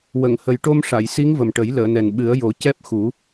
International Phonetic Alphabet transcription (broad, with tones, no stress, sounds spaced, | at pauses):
w ə˨˩˨ ŋ h ə˨˩ j ʈ o˧ m ʂ a˨˩˨ j s i˧˥ ŋ v ə˨˩ m ʈ ə˨˩˦ j l əː˨˩˨ n ɛ˨˩ n ɓ ɨ˨˩˦ ə̯ j o˨˩˦ c ɛ˦˥ p̚ x u˨˩˦